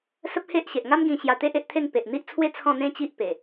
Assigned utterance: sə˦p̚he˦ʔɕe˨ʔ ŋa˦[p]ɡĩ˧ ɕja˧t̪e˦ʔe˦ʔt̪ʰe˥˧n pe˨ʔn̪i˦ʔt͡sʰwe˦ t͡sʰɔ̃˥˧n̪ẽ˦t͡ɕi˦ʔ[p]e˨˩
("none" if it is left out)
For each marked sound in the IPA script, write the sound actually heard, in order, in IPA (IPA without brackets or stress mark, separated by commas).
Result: m, p